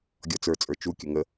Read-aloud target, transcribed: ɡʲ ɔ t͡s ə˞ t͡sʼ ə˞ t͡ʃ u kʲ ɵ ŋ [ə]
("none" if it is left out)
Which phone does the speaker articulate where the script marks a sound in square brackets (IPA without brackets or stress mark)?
ə